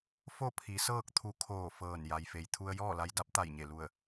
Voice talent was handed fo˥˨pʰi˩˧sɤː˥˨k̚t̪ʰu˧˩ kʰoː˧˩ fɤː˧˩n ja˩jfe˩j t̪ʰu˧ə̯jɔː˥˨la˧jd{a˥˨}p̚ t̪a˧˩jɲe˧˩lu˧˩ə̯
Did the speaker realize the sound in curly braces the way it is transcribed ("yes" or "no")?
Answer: no